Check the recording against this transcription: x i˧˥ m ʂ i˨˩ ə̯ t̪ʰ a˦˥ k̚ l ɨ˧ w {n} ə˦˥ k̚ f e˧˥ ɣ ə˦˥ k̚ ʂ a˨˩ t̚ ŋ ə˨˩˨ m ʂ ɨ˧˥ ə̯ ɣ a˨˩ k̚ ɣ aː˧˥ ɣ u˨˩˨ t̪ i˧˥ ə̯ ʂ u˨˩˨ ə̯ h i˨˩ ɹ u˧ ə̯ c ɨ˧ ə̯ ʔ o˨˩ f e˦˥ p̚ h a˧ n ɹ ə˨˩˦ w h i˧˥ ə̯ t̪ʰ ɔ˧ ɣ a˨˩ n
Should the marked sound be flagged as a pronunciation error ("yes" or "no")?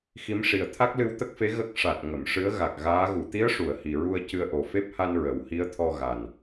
yes